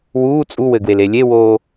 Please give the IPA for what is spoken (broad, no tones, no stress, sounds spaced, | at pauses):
w uː t͡sʼ u w ɘ ɡ w e l e lʲ e w oː